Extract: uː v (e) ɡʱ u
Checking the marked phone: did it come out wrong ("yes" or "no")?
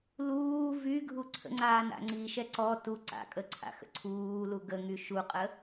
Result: yes